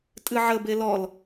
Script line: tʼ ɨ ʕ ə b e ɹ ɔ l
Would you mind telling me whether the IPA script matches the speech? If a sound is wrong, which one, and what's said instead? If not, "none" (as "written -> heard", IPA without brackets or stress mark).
ɹ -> l